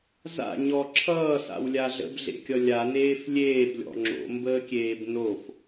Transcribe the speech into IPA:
z a̰ ɲ ɔ ǁʰ ʌː s a̰ w lʲ a ɮ ə̰ b ɮ ḛ kʲ ʌ lʲ a n eː f lʲ eː b lʲ ɔ̰ ŋ͡ǁ o̰ m b əː kʲ eː b n o f

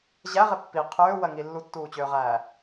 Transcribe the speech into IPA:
ʑ æ ʁ e pː i qʰ øː w ɜ ŋ i lː u tː uː t͡ɕ øː ʁ æː

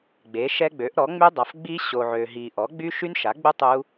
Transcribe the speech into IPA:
ɡ͡b e˩˥ ʃ ɛ˦˥ ɡ͡b ø˩˥ ʔ ɾ ɔ˩˥ ŋ͡m y˦˥ dˤ a˨ f ɡ͡b i˦˥ ɕ o˨ ʕ ø˨ ɦ i˨ ʔ ɔ˩˥ ɡ͡b y˦˥ ʃ y˦˥ n ʃ a˩˥ ɡ͡b u˦˥ tˤ u˦˥

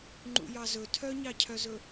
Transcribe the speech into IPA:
ŋ͡ǃ ṵ j ɑ z ɵ tʰ œ ɲ ɑ cʰ œ z ɵ

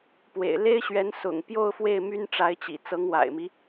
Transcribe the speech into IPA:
p w ḛ˨˩ ɪ̯ l e˥ ɪ̯ ɕ ɥ ɛ˧˥ n s ʊ̰˨˩ ŋ p j o˥˧ ʊ̯ f w e˥˩ ɪ̯ m y˥ n ʈ͡ʂ a˧˥ ɪ̯ t͡ɕ ḭ˨˩ t͡s ɤ˧˥ ŋ w a̰˨˩ ɪ̯ m i˦

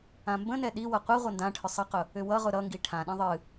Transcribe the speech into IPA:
ã m b ə̃ n ɛ ɗ i w ʌ qʷ i ʁʷ ʌ n d ã ʈʰ ʏ sˤ ʌ q ʊ | ʏ w ʌ ʁ ʊ ɾ ʌ ŋ ɡ i ʈʰ ã ɗ ĩ ðˤ ɨ

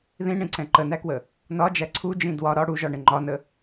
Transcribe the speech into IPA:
ð ĩ ɳ ĩ ǀ ɛ̃ ǃ ə n æ k w ə | n ɒ d͡ʒ æ ǀʰ u d͡ʒ ĩ d w ɒ ɾ ɒ ɽ u ʒ ɒ ɳ ɪ ŋ͡ǃ ɒ n ə

